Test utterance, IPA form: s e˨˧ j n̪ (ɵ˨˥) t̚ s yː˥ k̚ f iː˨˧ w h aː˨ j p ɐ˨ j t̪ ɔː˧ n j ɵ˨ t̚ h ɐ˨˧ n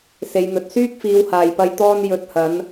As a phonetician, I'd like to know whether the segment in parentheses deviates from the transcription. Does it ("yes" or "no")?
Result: yes